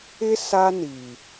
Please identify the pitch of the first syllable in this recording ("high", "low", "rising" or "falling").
high